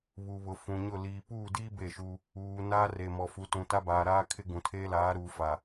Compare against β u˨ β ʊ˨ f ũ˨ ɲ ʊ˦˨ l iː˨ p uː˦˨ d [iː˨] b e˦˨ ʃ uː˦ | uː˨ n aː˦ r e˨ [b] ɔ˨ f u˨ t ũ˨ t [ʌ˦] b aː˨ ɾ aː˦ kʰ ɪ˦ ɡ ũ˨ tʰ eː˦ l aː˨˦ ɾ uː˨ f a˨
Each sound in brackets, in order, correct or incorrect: incorrect: iː˦, incorrect: m, incorrect: a˦

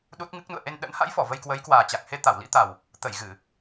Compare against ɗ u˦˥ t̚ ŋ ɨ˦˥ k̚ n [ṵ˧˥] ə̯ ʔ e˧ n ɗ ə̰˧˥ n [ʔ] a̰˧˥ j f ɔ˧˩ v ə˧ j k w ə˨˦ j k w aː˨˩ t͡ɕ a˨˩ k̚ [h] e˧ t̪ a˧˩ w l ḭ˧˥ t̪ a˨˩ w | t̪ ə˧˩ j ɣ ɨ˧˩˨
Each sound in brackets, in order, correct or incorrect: incorrect: ṵ˧˨, incorrect: h, correct

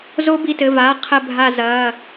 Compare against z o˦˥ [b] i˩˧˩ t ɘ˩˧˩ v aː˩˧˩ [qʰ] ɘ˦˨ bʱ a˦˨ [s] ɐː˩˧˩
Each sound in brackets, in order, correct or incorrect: correct, correct, incorrect: z

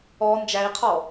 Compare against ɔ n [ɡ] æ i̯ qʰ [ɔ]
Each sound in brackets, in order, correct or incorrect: incorrect: d͡ʒ, correct

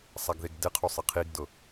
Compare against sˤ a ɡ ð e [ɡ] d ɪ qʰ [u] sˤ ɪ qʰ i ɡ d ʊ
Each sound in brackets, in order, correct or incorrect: correct, correct

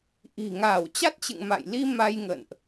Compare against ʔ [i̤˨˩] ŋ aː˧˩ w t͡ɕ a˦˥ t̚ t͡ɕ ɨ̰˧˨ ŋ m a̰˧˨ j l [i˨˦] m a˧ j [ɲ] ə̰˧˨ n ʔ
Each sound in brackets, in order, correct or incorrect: correct, incorrect: i˧, incorrect: ŋ

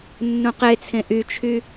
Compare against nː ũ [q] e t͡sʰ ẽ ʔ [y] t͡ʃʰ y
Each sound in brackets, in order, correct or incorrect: correct, correct

